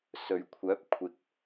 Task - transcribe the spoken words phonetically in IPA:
sɵ˨˩ɥkʷʰœː˨˥p̚kʷʰɪ˨k̚

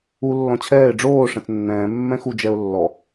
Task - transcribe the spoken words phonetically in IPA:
u lːɔ̃t͡ɕʰɛːɪ̯ ɖ͡ʐoː ʂɛ̃t͡snːɛ̃ː mːɛ̃xu d͡ʒɛʊ̯lːɔ

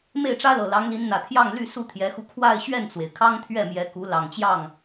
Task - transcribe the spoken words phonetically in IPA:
me˥˩ɪ̯ʈ͡ʂä˥lɤ˨˩ lɑ˧˥ŋli˧˥nn̪ä˨˩ t̪ʰjɑ˥˧ŋly˥˧ su˥˩t̪ʰjɛ˧˥xu˧ kʰwa˥˧ɪ̯ ɕɥɛ˥˩nt͡swe˩ɪ̯ kʰɑ˥ŋt̪ʰɥɛ˥˩mjɛ˧˥ ku˧˥ lɑ˨˩ŋt͡ɕjɑ˥˩ŋ

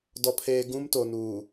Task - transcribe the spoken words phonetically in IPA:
dɔ˨pʰeː˨ɡũ˦m to˨nuː˨

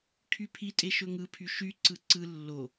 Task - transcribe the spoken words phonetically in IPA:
kʰypʰitʼe ʃɵŋɯpʰy ʃyǀɯ ǀɯ lːo

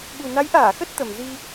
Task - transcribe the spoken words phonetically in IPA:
ɓu˨˩na˨˦jʔaː˧˩ xə˦˥t̚t̪ə˨˩m zi˧

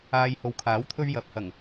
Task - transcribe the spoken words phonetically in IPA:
aː˧jho˨wkʰaː˨˥wt̪ʰɵ˥ɥ jɐ˨˥p̚hɐ˨˩ŋ

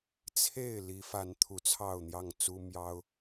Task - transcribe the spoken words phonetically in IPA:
t͡sʰe˥˨ɪ̯ li˨˦fa˨˦n t̪ʰu˨˦t͡sʰɑ˥˨ʊ̯n̪jɑ˥˨ŋt͡su˦ mjɑ˦ʊ̯

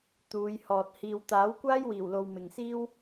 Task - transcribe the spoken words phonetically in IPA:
t̪uː˨˧jhɔː˨t̚ hiː˨wt̪aː˨˥w kʷaː˥jwiː˨˩wlo˨w mɪ˨ŋsiː˥w

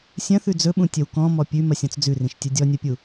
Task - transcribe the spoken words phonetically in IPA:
sʲɐ̃θʉ d͡zɵɓũ tʲɐwkɔ̃ mɔpʲʉ mɐsʲɔ̃t͡sd͡zʉrĩʃ tʲɐdʲɔnʲɐpʲu

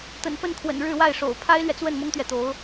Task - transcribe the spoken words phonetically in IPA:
t̪ə̰˨˩nfə˥˩nkʰwə̰˨˩n ɻɻ̩˥˧wa˥˩ɪ̯ʂo̰˨˩ʊ̯ pʰa˥ɪ̯lɥɛ˨t͡swə˥˩n mʊ˥ŋt̪ɥɛ˨t̪o˧˥ʊ̯

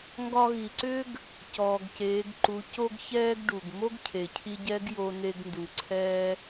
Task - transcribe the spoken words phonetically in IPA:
ŋɡɒ˧ɣi˩ǀʏ˥ɡ | cɔː˩ɡceː˩˧ɡǃu˩˧ co˥ɡçɛː˥ɡ ɖu˩ɡ mo˥ɡcʰe˩cʰi˧ɟɛ˧˥ɡ jo˧ne˧ɡndu˩ ǀʰɛ˥

